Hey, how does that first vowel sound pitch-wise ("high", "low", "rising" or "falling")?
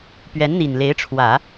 rising